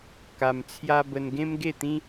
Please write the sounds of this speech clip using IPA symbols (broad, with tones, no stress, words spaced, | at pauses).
ka˧mt͡sʰja˦ bə˧nɡẽ˦mɡe˥˧t̪ĩ˦